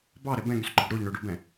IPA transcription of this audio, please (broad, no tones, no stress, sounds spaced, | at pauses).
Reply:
b ɑ ɾ ɛ b ɛ̃ ŋ y s ɡ͡ǃ ɔ ɖ ɾ o ʎ ɳ ø ɖ o b ɛ̃